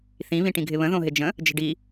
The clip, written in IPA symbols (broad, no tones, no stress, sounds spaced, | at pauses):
θ ĩ β ĩ ʈ ĩ ɡʱ ɪ β ə̃ ð õ ɦ ɪ d͡ʒ ə̃ | d͡ʒ ə̤ ɖ i